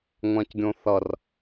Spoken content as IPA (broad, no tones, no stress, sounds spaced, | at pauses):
ŋʷ ã c ɡʲ õ θ ʌ r